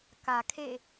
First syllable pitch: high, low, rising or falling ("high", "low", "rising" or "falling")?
low